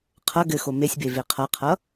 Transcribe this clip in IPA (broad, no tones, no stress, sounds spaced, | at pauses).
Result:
qʰ ʌ ɡ ɘ x o m e sʲ b e v e qʰ ʌ qʰ ʌ